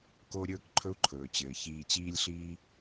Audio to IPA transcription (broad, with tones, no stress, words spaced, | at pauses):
ko˥ ɾʲɵː˥kǃʰɵ˥u̯ǃʰɵː˩t͡ɕɘː˩ çiː˨t͡ɕiː˦lʲɬiː˦